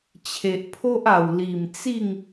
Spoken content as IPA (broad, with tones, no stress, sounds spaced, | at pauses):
t͡ɕʰ e˨ ʔ pʰ o˦ ʔ a˨˩ w l i˨˩ m t͡s i˥˧ ŋ